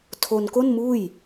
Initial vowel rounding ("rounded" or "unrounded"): rounded